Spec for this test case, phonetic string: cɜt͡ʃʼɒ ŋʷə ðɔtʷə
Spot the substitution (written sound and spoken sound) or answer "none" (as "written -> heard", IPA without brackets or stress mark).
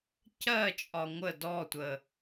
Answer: ð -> d